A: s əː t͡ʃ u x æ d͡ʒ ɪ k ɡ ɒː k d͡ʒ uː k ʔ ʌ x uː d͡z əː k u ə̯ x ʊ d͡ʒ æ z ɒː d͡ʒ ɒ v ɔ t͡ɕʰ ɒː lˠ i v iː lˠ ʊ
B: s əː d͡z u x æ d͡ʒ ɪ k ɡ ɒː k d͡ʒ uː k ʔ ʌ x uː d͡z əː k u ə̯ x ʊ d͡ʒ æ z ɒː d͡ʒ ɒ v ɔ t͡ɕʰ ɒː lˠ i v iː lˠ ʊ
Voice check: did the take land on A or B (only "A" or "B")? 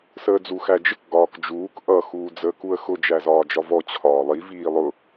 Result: B